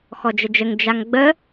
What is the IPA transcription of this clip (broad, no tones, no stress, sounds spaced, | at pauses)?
x ɔ d͡ʒ ə d͡ʒ ə ŋ d͡ʒ a ŋ ɡ͡b ə